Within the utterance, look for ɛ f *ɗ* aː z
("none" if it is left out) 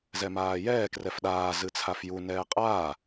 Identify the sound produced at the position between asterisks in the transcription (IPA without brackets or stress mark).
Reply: ɗ